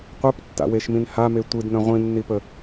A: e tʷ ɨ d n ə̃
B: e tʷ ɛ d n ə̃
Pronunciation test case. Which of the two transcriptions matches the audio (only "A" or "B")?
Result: A